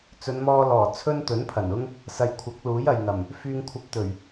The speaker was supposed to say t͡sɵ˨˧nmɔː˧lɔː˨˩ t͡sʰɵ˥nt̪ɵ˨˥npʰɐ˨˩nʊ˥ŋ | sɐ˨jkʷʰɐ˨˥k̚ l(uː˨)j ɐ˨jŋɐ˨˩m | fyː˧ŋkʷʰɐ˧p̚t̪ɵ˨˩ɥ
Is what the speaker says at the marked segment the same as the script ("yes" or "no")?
no